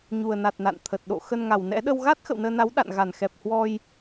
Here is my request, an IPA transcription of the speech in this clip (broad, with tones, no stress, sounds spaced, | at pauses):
ɲ u˨˩ ə̯ n a˨˩ t̚ n a̰˧˨ n t̪ʰ ə˨˩ t̚ ɗ o̰˧˨ x ə˧ n ŋ a˨˩ w n ɛ̰˧˥ ɗ ə˧ w ɣ a˦˥ t̚ x ə̰˧˨ w n əː˧ n a˨˦ w ɗ a̰˧˨ n ɣ a˧˩ n x ɛ˨˩ p̚ h w ɔ˧ j